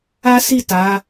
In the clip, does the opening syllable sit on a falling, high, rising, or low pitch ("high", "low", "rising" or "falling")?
high